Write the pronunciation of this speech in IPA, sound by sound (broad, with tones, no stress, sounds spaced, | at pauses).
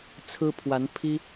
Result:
t͡sʰ ɹ̩˥ pʰ w a˧˥ n pʰ i˥